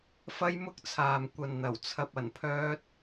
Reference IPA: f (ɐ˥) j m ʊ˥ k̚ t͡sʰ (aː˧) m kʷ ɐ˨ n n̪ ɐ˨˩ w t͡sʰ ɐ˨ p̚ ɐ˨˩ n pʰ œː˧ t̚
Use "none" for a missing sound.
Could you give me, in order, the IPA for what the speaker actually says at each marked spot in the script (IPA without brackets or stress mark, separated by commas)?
ɐ˥, aː˨